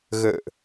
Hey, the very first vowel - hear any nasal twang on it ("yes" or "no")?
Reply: no